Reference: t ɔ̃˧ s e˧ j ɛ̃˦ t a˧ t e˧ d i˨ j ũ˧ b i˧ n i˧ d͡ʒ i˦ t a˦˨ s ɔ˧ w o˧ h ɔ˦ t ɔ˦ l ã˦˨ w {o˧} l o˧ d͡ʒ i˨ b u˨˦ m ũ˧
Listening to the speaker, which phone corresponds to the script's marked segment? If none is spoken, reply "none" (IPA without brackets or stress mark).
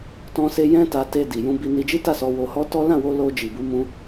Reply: o˧